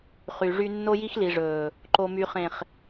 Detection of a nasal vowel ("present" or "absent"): present